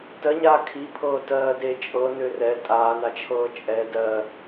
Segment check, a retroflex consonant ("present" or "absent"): absent